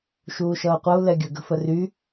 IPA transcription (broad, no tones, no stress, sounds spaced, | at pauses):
ʃ uː ʃ ʌː qʷ ʌ u̯ l ɛ ɡʲ ə ɡ ə̤ f ə r y